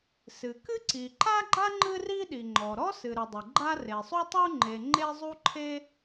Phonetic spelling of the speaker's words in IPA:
s ɨ˩ k ɨ˥ ǀ i˩ ǃ a˥ ɡ͡ǃ a˥ ŋ͡ǃ ɨ˥ r i˥ ɗ i˩ ŋ͡ǃ ɔ˩ ɾ ɔ˥ s ɨ˩ ɾ ɨ˩ dˤ ɨ˩ ɡ͡ǃ a˥ r e˩ sˤ u˥ tˤ u˥ ŋ͡ǃ e˩ ŋ͡ǃ e˥ zˤ u˥ ǃʰ e˥

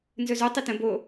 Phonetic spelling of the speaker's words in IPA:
n z ɵ z o tˤ i t ə̃ b o

